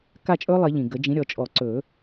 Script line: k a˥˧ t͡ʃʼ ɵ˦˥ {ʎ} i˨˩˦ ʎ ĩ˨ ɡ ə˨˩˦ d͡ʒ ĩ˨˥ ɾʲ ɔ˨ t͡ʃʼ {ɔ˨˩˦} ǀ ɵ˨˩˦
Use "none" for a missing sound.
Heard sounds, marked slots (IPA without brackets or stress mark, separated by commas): lˠ, ɔ˨˩˦